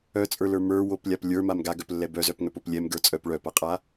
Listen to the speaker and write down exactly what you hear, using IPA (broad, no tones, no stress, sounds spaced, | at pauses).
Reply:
œ t͡sʼ ə˞ l ə˞ m ə˞ w o p lʲ a p lʲ ə˞ m a m ɡ a ɡ œ p lː ɛ b œ z œ p ŋ œ p o p lʲ ɛ m ɡ ə˞ t͡sʼ œ p ɭ œ p a qʼ a